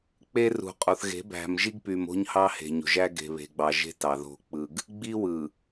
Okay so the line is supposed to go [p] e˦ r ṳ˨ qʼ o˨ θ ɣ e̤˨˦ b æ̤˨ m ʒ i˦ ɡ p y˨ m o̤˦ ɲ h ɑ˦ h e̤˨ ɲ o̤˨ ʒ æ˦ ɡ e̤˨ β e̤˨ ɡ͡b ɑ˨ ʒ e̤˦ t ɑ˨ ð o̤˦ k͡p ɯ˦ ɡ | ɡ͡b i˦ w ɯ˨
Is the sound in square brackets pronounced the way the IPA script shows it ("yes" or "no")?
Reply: no